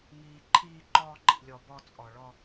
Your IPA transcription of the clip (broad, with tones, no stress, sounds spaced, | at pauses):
ŋ iː˩ ǃʰ iː˨ ǃ ɔː˨ ǃ ḭ˩ lʲ ɔ˩ b ɔ˨ t͡sʼ ɔ˩ ɭ ɔ˨